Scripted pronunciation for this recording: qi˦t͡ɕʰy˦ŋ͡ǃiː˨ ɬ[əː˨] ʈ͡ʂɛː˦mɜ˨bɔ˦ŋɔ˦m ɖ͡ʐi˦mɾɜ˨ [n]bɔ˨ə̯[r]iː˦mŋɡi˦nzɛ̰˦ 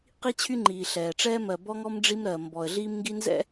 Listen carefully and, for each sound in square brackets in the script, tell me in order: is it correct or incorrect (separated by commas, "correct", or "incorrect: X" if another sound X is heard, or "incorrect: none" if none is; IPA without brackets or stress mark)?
incorrect: ɛː˨, incorrect: m, incorrect: ɮ